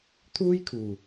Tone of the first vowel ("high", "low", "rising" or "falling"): high